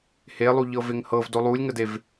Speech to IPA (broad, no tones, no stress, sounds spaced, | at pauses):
h e lˠ u ʎ ɤ v e ŋ h ɤ v d o lˠ u lʲ ŋ ə d e v